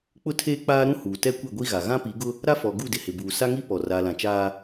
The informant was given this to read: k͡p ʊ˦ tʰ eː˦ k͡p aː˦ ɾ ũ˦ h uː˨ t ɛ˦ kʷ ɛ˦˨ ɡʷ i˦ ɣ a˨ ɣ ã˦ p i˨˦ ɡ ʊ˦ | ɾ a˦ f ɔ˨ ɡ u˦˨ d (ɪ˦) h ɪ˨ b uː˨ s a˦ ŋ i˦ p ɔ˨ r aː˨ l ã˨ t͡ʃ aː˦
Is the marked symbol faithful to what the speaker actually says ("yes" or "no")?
no